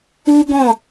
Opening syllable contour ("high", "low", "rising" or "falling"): high